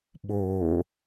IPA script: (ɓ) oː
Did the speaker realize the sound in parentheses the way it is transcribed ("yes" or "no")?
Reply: yes